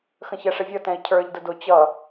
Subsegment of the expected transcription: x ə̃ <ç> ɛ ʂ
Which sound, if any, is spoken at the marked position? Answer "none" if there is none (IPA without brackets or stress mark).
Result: ç